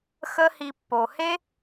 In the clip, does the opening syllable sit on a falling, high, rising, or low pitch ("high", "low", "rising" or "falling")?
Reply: high